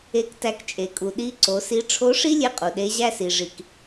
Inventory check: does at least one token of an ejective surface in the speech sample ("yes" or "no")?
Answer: yes